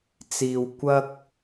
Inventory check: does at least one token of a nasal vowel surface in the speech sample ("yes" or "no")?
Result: no